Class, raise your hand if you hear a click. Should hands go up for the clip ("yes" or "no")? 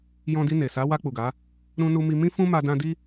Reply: no